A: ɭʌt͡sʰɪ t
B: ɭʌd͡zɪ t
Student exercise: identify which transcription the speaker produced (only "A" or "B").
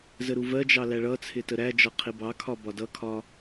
A